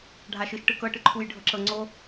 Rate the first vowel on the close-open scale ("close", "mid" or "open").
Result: open